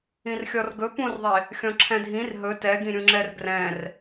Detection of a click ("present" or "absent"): present